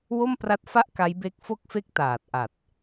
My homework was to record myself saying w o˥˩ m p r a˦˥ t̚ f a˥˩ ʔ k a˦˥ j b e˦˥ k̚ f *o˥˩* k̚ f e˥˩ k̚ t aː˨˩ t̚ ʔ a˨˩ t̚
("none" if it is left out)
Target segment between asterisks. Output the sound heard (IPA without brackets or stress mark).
o˥˩